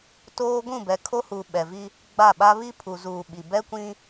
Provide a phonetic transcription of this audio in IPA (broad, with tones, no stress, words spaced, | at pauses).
toː˦ ɡʷũ˦˨bɛ˨kʰo˦huː˨ ɓɛ˨vi˦ | ɡ͡ba˦˨ɓa˦ βi˦pʰu˨zuː˨ ɓi˨ bɛ˦kʷĩ˦